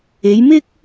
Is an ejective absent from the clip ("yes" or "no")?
yes